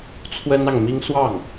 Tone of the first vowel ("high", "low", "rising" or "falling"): high